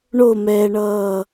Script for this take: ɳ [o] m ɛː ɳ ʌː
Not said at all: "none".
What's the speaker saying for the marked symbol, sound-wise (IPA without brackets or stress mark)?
o